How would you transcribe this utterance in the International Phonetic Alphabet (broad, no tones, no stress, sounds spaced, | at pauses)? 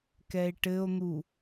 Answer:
k ɛ e̯ ʈ ɘ o̯ n̪ u